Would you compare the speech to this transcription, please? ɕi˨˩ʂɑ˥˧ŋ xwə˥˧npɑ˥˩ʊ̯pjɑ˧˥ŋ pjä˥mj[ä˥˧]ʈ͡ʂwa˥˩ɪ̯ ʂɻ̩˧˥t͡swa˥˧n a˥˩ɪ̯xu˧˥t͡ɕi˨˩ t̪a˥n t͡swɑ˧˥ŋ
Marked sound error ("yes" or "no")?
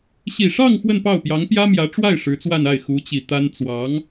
yes